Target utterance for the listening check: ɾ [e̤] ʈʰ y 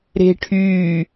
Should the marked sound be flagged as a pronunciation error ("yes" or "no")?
no